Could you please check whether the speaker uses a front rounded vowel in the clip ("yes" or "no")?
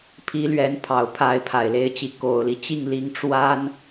no